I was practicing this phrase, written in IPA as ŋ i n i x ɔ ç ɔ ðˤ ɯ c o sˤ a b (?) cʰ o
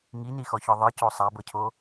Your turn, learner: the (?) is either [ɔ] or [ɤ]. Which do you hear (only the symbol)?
ɤ